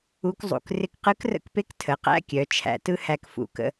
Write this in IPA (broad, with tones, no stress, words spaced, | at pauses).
u˧˥kzˤṵ˩k rɪ˧kqɯ˧˥krə̰˧kpe˧˥k tʰə˩˧qæ̰˧˥kʲœ˩˧ t͡ʃʰæ̰˩˧tɯ˥hæ˧k fṵ˩kə̰˧